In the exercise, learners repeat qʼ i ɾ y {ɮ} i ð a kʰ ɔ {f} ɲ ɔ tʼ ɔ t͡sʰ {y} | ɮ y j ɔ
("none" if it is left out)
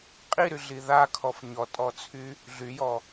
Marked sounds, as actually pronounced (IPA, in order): ɮ, f, y

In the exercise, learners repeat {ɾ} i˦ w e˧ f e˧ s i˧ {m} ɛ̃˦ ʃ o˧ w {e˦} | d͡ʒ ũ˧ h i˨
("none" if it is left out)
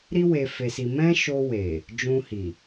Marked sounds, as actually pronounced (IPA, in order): ɾ, m, e˨

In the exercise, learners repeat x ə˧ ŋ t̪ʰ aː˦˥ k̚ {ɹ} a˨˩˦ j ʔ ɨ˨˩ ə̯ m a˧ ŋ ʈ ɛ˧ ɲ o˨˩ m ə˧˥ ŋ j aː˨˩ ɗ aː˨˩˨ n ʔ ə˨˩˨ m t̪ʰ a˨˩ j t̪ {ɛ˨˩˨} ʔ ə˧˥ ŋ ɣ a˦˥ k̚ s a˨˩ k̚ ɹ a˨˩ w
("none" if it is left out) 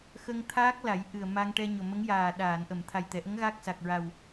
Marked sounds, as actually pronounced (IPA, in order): l, ɛ˨˩˨

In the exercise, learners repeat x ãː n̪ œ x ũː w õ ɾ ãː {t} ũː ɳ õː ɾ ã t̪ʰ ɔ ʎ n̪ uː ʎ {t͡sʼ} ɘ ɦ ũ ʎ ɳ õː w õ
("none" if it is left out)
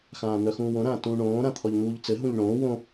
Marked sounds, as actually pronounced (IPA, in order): t, t͡s

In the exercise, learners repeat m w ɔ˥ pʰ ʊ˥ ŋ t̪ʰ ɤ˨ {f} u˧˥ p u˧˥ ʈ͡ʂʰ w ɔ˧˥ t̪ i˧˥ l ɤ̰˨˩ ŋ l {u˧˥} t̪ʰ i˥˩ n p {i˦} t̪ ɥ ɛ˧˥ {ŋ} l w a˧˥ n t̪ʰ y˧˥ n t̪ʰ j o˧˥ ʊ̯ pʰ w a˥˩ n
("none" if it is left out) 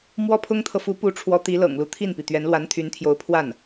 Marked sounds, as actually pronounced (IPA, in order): f, u˧˥, i˩, n

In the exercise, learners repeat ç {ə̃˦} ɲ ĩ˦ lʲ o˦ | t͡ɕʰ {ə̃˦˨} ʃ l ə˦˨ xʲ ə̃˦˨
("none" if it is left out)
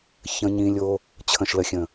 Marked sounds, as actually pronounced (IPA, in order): ə̃˦, ə̃˦˨

